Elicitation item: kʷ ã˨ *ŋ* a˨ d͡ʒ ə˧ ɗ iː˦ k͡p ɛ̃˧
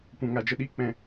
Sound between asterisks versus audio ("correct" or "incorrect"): correct